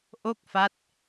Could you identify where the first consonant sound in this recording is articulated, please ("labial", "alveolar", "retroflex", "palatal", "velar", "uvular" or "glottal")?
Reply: glottal